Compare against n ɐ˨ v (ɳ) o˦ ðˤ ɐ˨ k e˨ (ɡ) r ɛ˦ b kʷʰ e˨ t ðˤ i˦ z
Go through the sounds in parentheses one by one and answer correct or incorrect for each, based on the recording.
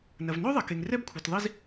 incorrect, incorrect

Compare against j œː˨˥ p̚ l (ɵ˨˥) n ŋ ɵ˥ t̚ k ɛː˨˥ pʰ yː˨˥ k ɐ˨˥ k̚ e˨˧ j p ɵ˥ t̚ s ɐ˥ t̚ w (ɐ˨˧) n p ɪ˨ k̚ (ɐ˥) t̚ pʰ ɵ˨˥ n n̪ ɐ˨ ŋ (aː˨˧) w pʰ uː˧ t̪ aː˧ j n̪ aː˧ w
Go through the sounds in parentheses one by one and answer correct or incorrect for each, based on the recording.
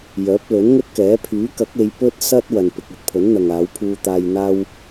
correct, incorrect, correct, correct

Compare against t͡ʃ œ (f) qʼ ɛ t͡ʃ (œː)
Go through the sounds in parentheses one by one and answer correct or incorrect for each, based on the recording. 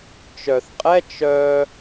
incorrect, incorrect

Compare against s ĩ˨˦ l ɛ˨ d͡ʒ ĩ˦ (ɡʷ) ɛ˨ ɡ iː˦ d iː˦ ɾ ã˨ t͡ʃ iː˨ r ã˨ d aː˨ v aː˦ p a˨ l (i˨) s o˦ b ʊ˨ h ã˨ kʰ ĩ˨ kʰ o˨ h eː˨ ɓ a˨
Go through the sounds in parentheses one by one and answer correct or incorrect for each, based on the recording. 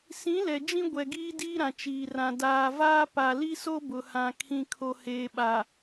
correct, incorrect

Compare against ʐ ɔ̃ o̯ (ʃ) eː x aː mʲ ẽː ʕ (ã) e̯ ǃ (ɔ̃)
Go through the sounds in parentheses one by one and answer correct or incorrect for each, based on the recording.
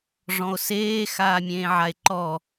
incorrect, incorrect, incorrect

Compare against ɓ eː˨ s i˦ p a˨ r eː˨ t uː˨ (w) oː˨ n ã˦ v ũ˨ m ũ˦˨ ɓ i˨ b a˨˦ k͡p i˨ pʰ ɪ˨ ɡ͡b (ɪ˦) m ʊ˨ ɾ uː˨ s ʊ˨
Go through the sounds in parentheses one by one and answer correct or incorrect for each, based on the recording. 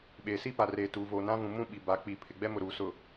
incorrect, incorrect

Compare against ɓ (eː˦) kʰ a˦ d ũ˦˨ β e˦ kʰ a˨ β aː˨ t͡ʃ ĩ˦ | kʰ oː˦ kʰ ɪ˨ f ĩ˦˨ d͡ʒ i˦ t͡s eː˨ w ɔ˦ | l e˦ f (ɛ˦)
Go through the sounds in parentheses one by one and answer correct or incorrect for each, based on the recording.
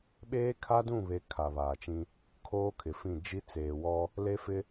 correct, incorrect

